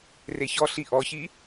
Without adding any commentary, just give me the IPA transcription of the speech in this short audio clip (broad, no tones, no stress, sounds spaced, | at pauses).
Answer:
r e ç ɔ ɬ i ʔ ɔ ç i